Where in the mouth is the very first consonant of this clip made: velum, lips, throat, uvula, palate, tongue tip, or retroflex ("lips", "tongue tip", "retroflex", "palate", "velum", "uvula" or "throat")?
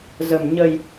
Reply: tongue tip